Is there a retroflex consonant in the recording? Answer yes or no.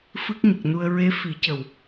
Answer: no